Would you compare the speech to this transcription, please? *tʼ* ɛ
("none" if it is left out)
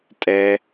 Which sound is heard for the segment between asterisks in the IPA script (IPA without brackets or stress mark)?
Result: tʼ